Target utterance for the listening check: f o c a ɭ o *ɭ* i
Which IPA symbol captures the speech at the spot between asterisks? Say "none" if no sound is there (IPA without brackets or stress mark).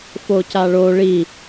ɭ